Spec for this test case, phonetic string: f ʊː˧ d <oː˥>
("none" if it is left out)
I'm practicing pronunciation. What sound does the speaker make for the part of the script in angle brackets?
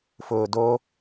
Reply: oː˥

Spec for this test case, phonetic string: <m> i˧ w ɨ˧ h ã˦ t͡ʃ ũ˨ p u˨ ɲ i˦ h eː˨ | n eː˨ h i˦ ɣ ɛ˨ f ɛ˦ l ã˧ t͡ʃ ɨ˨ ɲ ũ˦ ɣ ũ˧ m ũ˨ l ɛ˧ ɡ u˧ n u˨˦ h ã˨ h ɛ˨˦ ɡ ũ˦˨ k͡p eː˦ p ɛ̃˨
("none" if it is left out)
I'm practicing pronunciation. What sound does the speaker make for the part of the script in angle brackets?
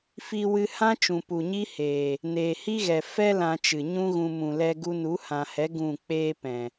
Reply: f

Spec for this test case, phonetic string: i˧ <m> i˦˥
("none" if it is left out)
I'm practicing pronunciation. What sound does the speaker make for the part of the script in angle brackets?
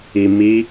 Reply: m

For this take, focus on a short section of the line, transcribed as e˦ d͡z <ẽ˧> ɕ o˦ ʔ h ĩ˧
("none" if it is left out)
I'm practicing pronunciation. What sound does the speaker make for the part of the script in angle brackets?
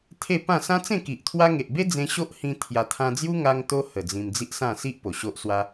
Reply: ẽ˧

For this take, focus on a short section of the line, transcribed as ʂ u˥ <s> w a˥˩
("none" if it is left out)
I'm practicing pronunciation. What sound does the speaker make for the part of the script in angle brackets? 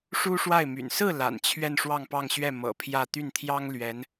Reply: ʂ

